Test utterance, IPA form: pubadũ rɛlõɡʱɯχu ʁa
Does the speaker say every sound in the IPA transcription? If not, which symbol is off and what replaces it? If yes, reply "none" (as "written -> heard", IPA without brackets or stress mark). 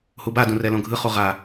p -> h